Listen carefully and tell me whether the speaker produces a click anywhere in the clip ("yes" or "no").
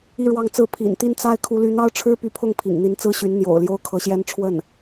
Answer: no